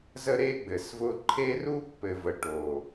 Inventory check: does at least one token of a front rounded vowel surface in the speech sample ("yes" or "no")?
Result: no